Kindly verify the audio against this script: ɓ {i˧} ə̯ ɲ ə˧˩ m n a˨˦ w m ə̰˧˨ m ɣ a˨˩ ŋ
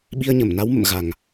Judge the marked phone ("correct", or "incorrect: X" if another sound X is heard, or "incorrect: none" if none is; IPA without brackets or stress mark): correct